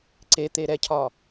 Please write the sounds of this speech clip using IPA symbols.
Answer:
ǀ e t̪ e ɾ ɛ cʰ ɒ

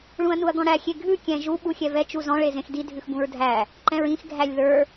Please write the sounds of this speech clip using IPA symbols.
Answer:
ɭ ũ ɐ̯ n u ɐ̯ ɡ ɔ̃ ɽ æ xʲ e ɡʱ ʉ kʲ ɛ̃ ʒ u ɓ u xʲ ɛ v ɛ t͡ʃ u z ɔ̃ ɭ e z ẽ x d i dʱ ʉ x b ũ ɹ dʱ æ | ǃ ɛ̃ ɹ ĩ x ɡʱ æ lʲ ð ə˞

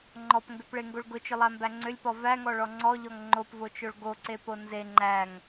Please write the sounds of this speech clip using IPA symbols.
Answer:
ŋ͡ǃ ɔ p ŋ ɡ ʏ p ɭ e ŋ ɡ o ɭ ɡ ʊ t͡ʃ ʏ lˠ æ m b æ ŋ͡ǀ ʏ lʲ p ɔ v æ ŋ ɔ ɭ ɔ ŋ͡ǀ ɔ ʎ ɔ ŋ ŋ͡ǃ o p v o t͡ʃ o ɭ ɡ o ǀ e p o n z e ŋ͡ǃ æ ŋ

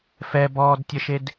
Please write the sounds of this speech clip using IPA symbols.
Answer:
f ɛ b ɔː d tʲ ə ʃ e d

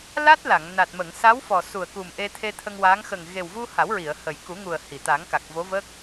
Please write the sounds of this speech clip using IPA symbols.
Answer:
l a˦˥ t̚ l a˨˩˨ ŋ n a˨˩ t̚ m ə˨˩˨ ŋ s a˧˥ w f ɔ˨˩ s u˨˩ ə̯ k u˨˩ m ʔ e˧ t̪ʰ e˧ t̪ʰ ə˧ ŋ w a˧˥ ŋ x ə˨˩ ŋ ɣ e˨˩ w v u˧ h a˨˩˦ w ɹ i˨˩˨ ə̯ h ə˨˩ j k u˨˩˦ ŋ u˨˩ ə̯ h i˨˩˨ t̪ a˨˩˦ ŋ k a˨˩ k̚ v o˧˥ v əː˦˥ k̚

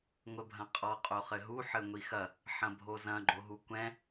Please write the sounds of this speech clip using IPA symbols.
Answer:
ŋʷ ɘ bʱ ɐ̃ qʼ ɔ qʼ o χ ɘ ɦ u ħ ɘ ŋʷ i x ɐ | ħ ɐ̃ bʱ o z ɐ̃ ɡ͡ǃ o ɦ u kʷ ɛ̃

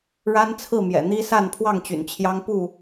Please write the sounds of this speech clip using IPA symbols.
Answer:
ɻ a˦ n t͡sʰ ɹ̩˥˨ m j ɛ̰˨˩ n̪ i˦ s a˥˨ n pʰ w ɑ˥˨ ŋ t͡ɕ y̰˨˩ n t͡ɕʰ j ɑ˦ ŋ p u˥˨

